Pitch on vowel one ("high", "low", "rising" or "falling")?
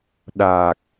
low